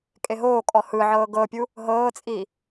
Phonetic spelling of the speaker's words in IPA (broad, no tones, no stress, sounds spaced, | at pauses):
kʼ e ɦ oː kʼ ɔ h ɯ ʕ ɤː ɡ ɤ pʲ u | ɦ ɤː t͡sʼ iː